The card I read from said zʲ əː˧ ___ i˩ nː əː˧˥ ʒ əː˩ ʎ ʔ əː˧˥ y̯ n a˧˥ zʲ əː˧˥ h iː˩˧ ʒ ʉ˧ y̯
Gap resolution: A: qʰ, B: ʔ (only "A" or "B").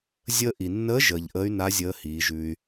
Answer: B